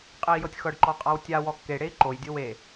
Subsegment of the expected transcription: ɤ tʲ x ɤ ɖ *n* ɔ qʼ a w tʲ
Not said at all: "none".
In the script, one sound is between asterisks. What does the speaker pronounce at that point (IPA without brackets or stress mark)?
ǃ